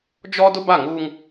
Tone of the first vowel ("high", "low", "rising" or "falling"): high